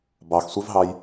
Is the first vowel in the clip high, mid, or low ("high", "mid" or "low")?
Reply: low